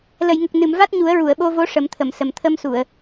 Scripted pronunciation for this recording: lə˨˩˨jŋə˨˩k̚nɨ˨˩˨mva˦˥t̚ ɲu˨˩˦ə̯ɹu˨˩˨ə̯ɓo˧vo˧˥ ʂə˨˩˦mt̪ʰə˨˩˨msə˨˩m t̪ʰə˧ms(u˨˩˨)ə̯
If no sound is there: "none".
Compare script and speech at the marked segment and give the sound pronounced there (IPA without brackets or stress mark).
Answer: u˨˩˨